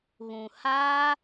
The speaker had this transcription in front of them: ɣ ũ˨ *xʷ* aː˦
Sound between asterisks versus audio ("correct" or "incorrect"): incorrect